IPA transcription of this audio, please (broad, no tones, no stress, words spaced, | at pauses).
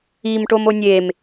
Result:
im ʈomonʲem